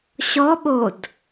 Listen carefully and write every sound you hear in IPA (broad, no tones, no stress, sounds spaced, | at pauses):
ɕ ɔ ɓ o d